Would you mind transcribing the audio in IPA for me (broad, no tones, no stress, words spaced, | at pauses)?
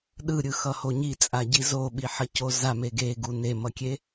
ɗɯɾʲɯxʌho ɲit͡sʼaɟi zoɓiħʌco zame ɡeɡu nemʌkʲe